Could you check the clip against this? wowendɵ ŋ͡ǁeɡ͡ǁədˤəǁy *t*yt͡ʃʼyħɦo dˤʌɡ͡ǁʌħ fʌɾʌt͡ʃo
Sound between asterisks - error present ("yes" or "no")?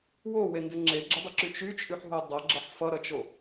yes